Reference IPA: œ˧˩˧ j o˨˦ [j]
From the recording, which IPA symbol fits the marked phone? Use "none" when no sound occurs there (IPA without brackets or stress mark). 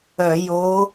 none